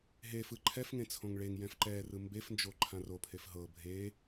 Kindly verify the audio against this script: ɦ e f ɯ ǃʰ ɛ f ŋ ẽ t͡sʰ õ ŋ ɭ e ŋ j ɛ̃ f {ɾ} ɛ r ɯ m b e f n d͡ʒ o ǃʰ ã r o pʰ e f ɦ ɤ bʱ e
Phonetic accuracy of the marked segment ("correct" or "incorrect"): incorrect